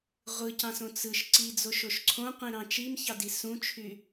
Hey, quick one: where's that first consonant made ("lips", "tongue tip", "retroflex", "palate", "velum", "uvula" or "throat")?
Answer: uvula